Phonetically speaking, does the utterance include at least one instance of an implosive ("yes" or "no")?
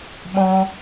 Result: yes